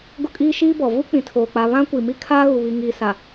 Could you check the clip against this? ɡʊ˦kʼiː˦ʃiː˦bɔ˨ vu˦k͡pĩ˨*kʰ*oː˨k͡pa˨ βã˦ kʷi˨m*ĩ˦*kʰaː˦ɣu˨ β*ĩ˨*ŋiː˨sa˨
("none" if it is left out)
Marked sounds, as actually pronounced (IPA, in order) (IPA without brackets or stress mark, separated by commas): tʰ, i˦, i˨